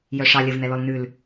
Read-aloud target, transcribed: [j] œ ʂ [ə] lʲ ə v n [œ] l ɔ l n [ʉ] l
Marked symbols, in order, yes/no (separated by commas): yes, no, no, yes